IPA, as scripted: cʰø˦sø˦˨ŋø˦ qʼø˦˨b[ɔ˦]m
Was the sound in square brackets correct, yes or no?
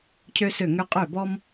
yes